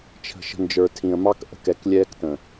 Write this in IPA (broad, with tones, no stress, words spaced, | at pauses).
t͡ʃʰə̤˨ʃə̤˨ nd͡ʒə˞˨tʰĩ˨ə̯mɑ˦k ʔə̤˦kɛ˨˦klʲɛː˦ktə̃˨